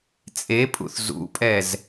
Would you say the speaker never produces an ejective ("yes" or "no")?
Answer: no